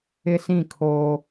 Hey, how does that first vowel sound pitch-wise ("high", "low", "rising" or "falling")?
high